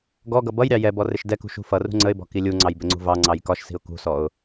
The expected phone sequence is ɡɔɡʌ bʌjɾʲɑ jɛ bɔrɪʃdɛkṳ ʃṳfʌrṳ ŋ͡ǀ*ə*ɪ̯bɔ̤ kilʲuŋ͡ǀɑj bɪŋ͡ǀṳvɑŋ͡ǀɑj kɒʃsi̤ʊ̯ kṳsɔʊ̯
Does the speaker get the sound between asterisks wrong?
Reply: no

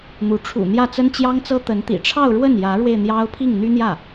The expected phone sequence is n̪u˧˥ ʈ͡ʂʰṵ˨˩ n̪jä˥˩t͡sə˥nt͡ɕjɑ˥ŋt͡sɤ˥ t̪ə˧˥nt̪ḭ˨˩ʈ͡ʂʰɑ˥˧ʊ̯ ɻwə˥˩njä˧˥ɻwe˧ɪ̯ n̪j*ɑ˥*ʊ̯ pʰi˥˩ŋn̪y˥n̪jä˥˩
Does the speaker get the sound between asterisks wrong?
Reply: no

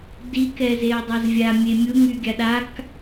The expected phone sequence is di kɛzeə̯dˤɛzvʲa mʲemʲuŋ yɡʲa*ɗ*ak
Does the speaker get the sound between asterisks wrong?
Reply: no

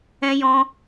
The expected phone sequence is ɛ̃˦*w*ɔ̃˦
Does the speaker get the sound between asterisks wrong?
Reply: yes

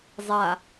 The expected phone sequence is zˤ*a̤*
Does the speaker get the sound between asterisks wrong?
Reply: yes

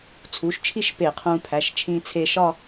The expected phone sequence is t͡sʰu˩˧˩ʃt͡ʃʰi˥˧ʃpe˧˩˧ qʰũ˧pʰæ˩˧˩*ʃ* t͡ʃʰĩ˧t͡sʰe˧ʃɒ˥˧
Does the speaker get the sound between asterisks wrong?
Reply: no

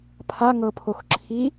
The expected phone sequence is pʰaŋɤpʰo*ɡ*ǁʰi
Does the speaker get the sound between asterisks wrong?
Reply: yes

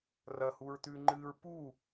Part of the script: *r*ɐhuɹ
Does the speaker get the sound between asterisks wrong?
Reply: no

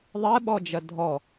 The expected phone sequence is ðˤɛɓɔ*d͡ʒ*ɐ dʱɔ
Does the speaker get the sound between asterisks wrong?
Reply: no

